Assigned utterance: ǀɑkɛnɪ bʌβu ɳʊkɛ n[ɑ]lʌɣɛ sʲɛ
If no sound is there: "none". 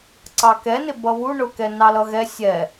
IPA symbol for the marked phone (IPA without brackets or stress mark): ɑ